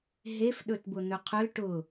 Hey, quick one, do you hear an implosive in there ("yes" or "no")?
yes